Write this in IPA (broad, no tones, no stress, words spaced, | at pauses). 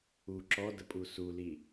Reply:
u ǁɔdəpʼu suli